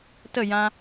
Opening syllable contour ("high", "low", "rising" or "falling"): falling